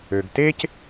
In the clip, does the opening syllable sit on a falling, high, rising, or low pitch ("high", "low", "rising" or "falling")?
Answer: low